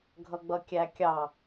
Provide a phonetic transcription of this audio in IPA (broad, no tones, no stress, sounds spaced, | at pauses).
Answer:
ɡʱ ʌ ɡ͡b ʌ kʲ æ kʲ ɑ